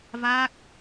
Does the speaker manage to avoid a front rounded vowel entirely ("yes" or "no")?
yes